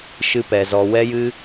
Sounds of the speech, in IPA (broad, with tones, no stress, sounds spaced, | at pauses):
ʃ ɨ˦ p ɛ˧ z ɔ˧ w ɛ˧ j ɨ˧